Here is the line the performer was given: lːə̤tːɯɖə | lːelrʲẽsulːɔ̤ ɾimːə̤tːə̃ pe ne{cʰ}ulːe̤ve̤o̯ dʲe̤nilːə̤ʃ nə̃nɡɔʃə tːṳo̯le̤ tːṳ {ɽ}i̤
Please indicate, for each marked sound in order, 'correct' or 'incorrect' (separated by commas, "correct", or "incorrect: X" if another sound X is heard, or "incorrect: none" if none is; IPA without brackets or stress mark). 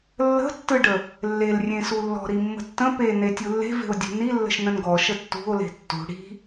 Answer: incorrect: tʲ, correct